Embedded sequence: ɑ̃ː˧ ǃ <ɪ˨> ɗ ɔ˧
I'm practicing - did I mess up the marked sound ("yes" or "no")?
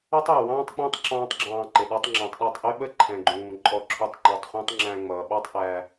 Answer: no